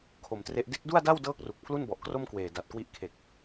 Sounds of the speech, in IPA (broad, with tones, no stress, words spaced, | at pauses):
kʰo˨˩mtre˦˥ʔ de˦˥k̚du˥˩a̯da˥˩w dɤː˥˩k̚ru˨˩k̚ pʰlu˥˩nbɔ˨˩ʔkro˥˩mkweː˨˩ da˨˩t̚kwi˦˥ʔkʰe˨˩k̚